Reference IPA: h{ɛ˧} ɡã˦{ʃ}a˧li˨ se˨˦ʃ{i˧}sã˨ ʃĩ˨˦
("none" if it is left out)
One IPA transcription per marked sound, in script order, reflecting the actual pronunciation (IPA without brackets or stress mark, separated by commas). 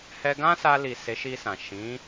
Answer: ɛ˧, s, i˧